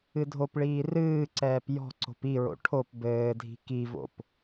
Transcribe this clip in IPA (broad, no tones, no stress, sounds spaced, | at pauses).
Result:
ɨ dʱ o p ɭ iː r ɨː ǀ ɛː p j ɔ̤ ǀ o̤ p i ɹ o̰ ʈʰ o p b ɘː dʱ i̤ k i v o̰ p